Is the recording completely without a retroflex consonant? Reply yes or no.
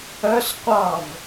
yes